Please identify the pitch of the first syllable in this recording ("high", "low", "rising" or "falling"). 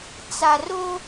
low